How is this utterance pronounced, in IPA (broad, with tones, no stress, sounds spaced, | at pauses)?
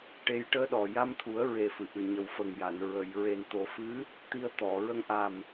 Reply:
ʈ e˧ j ʈ əː˧ ɗ ɔ˨˩ j a˧ m t̪ʰ u˨˩˦ ə̯ ɹ e˨˩ f ɨ˨˩˨ ʔ ɨ˨˩ ɲ ə˨˩ w f ə˨˩ ŋ j a˨˩˨ n ɹ ə˨˩˨ j ɹ e˨˩ n t̪ o˨˩˦ f ɨ˧˥ | t̪ i˧ ə̯ t̪ ɔ˨˩˨ ɹ ə˧ ŋ ʔ a˨˩ m